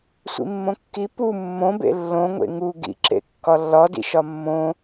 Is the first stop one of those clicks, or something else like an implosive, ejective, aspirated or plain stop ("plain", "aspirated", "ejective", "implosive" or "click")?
plain